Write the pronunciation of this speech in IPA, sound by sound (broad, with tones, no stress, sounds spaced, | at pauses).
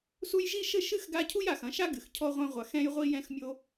s u˦ j ʒ i˥ ʃ ɘ˥ ʃ ɨ˥ x ɡ a˦ cʰ u˥ j a˩ x ɐ̃˨ ʃ a˥ ɡ ɨ˩ x cʰ ɔ˦ ʁʷ ɛ̃˦ ʁʷ a˨ x ɛ̃˦ j ʁʷ i˦ j ɛ̃˦ x mʲ o˦